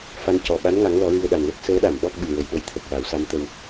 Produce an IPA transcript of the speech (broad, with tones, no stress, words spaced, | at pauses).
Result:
fa˧ncɔ˨˩ ɓa˧˥nŋa˨˩˦ŋ lɔ˨˩˦ɹɨ˧ə̯ɗa˨˩n lə˦˥k̚ səː˧˥ɗa˨˩˨m ɓɔ˦˥k̚ɓɨ˨˩ ɹə˨˩˨jɗə˨˩˦jt̪ʰə˨˩k̚ wa˨˩˦wsa˧˥mt̪ə˧w